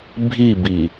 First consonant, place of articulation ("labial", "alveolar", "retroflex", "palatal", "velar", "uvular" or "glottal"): labial